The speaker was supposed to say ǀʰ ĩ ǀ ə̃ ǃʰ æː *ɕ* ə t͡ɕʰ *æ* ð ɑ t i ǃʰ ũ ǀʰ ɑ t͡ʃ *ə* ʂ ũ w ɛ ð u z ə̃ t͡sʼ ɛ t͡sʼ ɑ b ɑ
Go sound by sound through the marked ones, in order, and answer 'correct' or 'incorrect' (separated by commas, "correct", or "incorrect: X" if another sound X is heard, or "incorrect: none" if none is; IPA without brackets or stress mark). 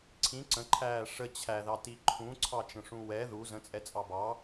incorrect: ʂ, correct, incorrect: ə̃